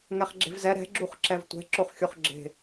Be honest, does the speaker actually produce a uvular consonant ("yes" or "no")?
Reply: yes